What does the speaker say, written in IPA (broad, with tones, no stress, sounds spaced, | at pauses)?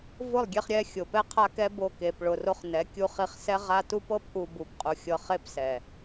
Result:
v ʊ˦˨ lˠ ɡʲ e˧ χ ɾʲ ɛ˦ xʲ ʊ˨ p ɛ˦ qʰ a˦ k ɛ˦ b o˦˨ k e˨ p ɭ ʊ˨ r o˧ χ n ɛ˨˦ kʲ u˧ χ i˧ χ s ɛ˦ ʁ a˦ t u˦ p ɤ˦ p ʔ u˧ b u˨ p qʼ u˨ xʲ ɤ˧ χ e˦ p s ɛ˨